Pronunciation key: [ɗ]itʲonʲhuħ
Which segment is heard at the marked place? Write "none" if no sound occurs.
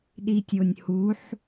ɗ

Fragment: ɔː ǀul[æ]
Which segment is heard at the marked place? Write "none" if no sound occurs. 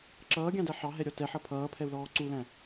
æ̃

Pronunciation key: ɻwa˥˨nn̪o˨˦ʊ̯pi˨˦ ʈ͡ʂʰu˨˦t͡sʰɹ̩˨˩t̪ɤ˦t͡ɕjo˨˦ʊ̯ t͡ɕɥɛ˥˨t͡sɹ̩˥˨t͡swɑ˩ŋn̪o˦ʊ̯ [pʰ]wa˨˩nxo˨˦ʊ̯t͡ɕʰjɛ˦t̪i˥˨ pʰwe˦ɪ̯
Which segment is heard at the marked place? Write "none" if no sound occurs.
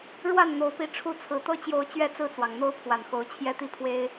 pʰ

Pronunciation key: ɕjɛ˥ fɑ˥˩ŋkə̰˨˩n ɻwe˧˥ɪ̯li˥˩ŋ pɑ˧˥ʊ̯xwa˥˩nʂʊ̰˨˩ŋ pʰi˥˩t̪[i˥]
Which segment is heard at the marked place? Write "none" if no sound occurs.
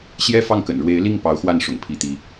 i˥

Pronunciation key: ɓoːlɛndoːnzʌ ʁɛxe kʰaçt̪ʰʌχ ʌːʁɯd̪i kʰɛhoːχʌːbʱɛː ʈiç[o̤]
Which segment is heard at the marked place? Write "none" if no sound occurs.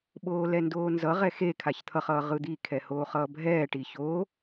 o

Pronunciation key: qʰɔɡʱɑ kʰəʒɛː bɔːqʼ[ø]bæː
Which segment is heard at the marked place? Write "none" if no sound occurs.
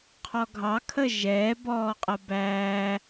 ə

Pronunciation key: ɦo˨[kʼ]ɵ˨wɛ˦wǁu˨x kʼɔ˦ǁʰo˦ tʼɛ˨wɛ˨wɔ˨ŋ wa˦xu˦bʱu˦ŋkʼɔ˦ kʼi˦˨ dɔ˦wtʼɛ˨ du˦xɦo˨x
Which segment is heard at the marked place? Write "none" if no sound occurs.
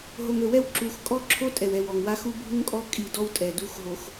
ŋ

